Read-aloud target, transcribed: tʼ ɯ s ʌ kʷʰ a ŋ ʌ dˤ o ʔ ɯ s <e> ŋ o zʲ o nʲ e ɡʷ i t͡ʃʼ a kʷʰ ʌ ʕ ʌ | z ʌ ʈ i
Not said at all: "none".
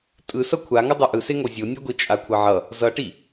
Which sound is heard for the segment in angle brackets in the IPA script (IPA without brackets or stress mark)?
e